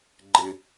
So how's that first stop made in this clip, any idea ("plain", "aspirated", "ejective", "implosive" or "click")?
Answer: click